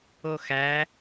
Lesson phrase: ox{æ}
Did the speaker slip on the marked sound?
no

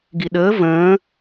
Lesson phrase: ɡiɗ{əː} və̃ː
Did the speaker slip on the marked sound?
no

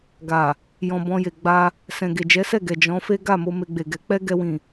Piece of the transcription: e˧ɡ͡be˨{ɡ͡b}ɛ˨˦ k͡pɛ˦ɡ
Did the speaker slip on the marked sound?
yes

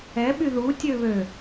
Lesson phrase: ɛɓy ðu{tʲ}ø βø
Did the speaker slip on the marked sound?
no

